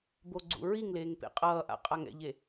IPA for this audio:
boɡ͡ǀṵɹiŋleːŋ pḛqʼʌːʔa̰ qʼaŋɛ̰ʎe

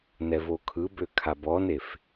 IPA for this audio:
nɛvokʰɯbø kʰabɔnef

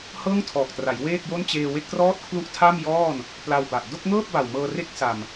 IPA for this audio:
hɤː˥˩ŋtʰɔː˨˩k̚tra˩˦j weː˥˩k̚jo˥˩n t͡ɕeː˧we˥˩k̚trɔː˥˩t̚ kʰlu˥˩ʔtʰa˥˩mjɔː˥˩n | pla˧wba˨˩ʔ do˥˩k̚ŋɤː˥˩p̚ba˨˩w mɤː˧re˥˩k̚ sa˨˩m

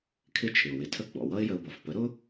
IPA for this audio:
kʰɪ˥˩t͡ʃʰɪ˩ʊ̯wɪ˩˥tʰə˥˩ ɡ͡bɔ̰˩wʌ˥ɪ̯jə˧ʊ̯bʌ˩f pə˩˥ɾʊ˥

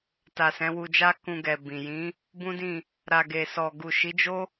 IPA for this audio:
ta˨sɛ̃˨˦wu˧d͡ʒa˦ kũ˧ɡɛ˨bĩ˨ jĩ˨˦ | bũ˦dĩ˦˨ | ɾa˨ ɡe˨sɔ˨ ɡu˨ʃi˨˦d͡ʒo˦

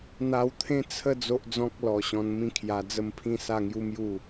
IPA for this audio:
n̪a˧wt̪ʰẽ˦ t͡sʰə˥˧ d͡zo˦ʔd͡zɔ̃˦k̚lɔ˨˩ ɕɔ̃˧nmĩ˥˧kʰja˧d͡zə˥˧m pʰĩ˥˧sa˥˧ŋju˦mju˥˧

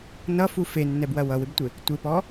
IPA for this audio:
nʌfu fenːɛbwɐ wʌwɪbtʷɪ | tʷɪpɔ

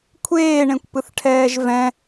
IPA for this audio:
kʷʰeːɳẽkʷpɯθʈʰɛːʒ vɛ̃

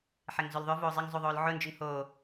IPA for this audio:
ħɛŋzolðˤʏ voːzˤɪŋzˤu ðˤoːlʕʊnd͡ʒʏŋ ho

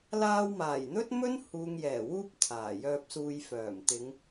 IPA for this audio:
laː˧wmaː˨˩j n̪ɵ˥t̚mɵ˥n huː˨ŋjɛː˨˩wuː˧p̚ t̪ʰaː˨˩jœː˧p̚suː˧j fœː˨˩mt̪ɪ˨˧ŋ

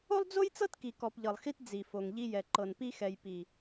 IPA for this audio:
o˦lˠd͡zo˦jt͡sɤ˦t ki˨kɔ˨pʎɤ˨lˠxi˦t d͡zi˨fo˨ŋ ʎi˦jɛ˨ ǃɤ˨npi˦xɛ˨jpi˨

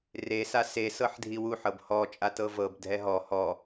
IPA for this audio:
re sase sɤħdʱiwu ħɤbhɔ t͡ʃʼatɤvɤb dʱɛɦɔ hɔ

